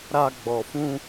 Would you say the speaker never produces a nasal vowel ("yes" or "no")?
no